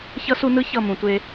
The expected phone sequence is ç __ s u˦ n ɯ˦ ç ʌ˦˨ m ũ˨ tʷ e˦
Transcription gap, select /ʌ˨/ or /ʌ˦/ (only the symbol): ʌ˦